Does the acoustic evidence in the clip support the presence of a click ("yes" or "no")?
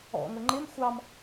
yes